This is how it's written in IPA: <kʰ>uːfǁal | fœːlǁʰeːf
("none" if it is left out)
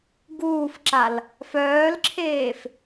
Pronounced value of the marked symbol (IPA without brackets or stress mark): ɡ